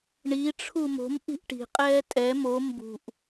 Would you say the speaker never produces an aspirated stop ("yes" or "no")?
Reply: no